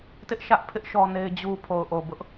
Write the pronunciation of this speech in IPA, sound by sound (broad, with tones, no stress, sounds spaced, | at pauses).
t ɪ˦ ʔ ʃ ä˦ ʔ pʰ ɪ˦ ʔ ʃ ɔ˦ n e˦ ɪ̯ d͡ʑ u˦ pʰ o˨ ʊ̯ ʔ o˨ b ʊ˦ ʔ